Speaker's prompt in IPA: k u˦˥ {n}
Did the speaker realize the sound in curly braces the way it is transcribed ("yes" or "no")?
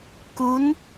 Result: yes